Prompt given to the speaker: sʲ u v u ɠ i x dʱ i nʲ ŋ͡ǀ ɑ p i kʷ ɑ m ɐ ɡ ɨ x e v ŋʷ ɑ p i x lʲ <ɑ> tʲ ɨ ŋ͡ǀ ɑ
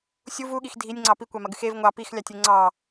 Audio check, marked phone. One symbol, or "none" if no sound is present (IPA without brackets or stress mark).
ɑ